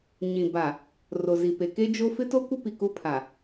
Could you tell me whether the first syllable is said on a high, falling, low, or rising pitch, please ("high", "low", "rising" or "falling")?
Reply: low